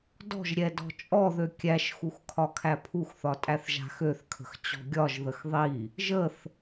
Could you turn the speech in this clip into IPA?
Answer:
d ɔ̤ ʒ ɾʲ ɛ d ɔ̤ t͡ʃʼ ɔ ð ø kʲ æ ʃ x u x kʰ ɒ kʰ æ pʰ u x θ ɒ tʼ æ θ ʒ a̤ x ø θ kʰ ə̤ x t͡ɕ ɔ̤ ɡʲ ɒ ʒ ð ə x ðˤ i | ʒ ə θ

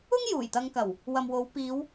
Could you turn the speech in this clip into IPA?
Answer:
ʊ˥ ŋ j uː˨˩ j t̪ ɐ˧ ŋ k ɐ˨˩ w | w ɐ˨ m w o˨˧ w p iː˨˧ w

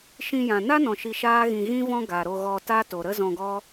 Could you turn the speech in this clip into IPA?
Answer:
ʃ ĩ˧ j ã˨ n a˦ n ɔ̃˨ ʃ i˧ ʃ aː˦ ɣ ĩ˧ ɣ ĩ˦ v ɔ̃˦ ɡ a˨ ɾ o˧ ɣ ɔ˧ t a˦ t o˨ ɾ ə˦ z ɔ̃˧ ɡ ɔ˦

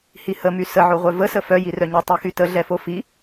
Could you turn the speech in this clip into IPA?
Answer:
h i h ə m y s ə ʕ o ʁʷ œ v ə s ə f œ j i r œ ɲ o tˤ i x y t ə ɮ ɛ f o f i

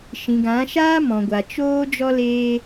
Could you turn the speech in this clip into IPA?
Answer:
ʃ ĩ˨ ɡ ã˨˦ ʃ aː˦ m ɔ̃˨ ɡʷ a˨ t͡ʃ oː˦ d͡ʒ ɔ˦ l eː˦

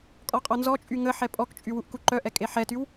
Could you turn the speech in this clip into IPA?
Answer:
kʼ ɔ qʼ ɔ n z ɔ t͡ʃʼ y ŋ ə ħ ɛ pʼ ɔ k t͡ʃʼ y w u ʔ k u ǃ œ ʔ ɛ kʼ e ħ ɛ t y w

